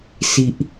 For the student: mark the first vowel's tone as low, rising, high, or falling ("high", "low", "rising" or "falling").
low